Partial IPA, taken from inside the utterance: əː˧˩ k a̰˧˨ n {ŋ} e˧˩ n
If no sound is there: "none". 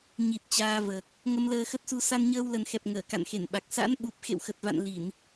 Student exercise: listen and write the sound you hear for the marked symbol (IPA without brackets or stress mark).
x